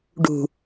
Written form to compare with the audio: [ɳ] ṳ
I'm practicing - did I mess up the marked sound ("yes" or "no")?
yes